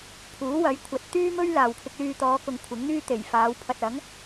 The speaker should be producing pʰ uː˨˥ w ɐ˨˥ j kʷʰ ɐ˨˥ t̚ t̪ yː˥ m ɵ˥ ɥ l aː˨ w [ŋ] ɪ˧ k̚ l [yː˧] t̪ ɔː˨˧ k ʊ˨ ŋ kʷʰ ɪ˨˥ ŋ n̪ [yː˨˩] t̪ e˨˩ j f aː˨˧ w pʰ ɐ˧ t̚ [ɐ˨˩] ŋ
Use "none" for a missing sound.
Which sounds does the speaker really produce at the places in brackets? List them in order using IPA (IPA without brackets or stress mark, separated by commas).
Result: kʰ, yː˧, yː˥, ɐ˨˥